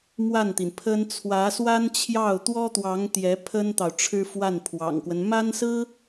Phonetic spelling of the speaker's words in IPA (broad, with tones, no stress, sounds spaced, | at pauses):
m w a˥˩ n t̪ i˩ n pʰ ə˥ n t͡sʰ w ä˧˥ s w a˥ n t͡ɕʰ j ɑ˥˩ ʊ̯ t̪ w ɔ˥ t̪ w ɑ˧˥ ŋ t̪ j ɛ˧˥ pʰ ə˥ n t̪ ɑ˨ ʊ̯ ʈ͡ʂʰ ɻ̩˥ f w a˥˩ n pʰ w ɑ̰˨˩ ŋ k w ə˦ n m a˥ n s ɹ̩˥